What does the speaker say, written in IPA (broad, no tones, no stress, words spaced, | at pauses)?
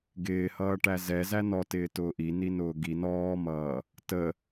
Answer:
ɡɪːhʌː ʈæzɛzæ nɔtɪːtʊː ʔi ninʊːɡi nɔːmʌː | tə